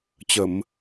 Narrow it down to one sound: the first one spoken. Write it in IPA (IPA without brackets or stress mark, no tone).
t͡ɕ